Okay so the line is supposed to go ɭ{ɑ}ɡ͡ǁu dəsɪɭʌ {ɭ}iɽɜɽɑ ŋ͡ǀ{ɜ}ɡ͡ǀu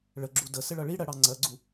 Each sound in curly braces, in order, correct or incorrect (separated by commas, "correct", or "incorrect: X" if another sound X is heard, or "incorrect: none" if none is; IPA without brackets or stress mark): incorrect: ə, correct, correct